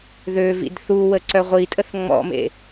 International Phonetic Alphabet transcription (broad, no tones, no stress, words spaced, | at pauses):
ðø vḭdθuwə ǀœʁʷitʼəθ ŋ͡mɔ̰mḛ